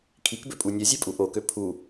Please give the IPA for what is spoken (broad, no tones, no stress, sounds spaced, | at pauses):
kʰ i k b ø pʼ u nʲ œ zʲ ɛ pʼ u ʔ o k ø pʰ u